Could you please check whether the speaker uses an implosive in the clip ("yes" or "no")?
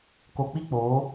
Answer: no